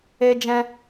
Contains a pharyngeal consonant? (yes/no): no